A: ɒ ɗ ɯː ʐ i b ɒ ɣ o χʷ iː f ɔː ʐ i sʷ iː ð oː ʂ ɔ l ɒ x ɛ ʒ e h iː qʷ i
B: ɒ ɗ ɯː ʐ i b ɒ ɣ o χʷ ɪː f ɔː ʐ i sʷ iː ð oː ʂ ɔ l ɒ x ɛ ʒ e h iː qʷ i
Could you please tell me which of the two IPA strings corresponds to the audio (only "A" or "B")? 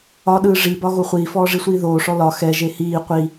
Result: A